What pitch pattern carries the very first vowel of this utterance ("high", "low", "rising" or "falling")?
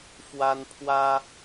high